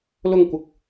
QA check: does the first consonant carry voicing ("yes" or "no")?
yes